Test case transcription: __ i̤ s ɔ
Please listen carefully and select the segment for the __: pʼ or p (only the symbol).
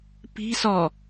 p